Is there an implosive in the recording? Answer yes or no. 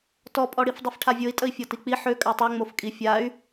no